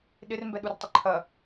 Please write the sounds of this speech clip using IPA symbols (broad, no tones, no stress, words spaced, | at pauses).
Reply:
ɗɪrmbɛɗurtˤə ǃʰɐ